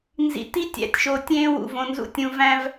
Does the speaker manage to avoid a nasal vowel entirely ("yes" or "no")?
no